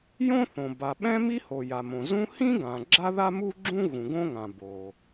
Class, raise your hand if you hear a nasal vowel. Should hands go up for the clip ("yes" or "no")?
yes